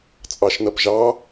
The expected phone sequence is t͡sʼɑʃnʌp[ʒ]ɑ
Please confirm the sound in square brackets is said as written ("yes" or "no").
yes